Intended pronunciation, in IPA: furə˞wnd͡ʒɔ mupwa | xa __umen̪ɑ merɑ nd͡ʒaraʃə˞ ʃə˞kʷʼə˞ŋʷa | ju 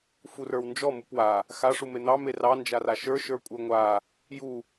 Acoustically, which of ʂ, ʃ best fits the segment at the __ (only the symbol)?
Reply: ʂ